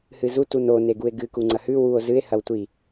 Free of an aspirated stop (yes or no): yes